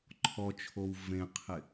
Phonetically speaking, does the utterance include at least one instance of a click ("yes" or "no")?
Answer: yes